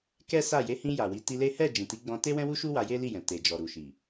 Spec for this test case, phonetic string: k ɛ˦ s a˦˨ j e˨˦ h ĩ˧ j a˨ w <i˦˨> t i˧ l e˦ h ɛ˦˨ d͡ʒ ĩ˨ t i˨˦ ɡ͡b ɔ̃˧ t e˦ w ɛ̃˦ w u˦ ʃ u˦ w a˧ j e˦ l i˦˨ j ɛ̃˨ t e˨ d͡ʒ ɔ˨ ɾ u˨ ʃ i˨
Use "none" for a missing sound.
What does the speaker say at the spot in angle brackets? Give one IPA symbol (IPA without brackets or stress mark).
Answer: i˨˦